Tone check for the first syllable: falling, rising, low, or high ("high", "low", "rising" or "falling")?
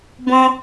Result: high